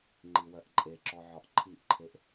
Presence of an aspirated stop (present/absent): present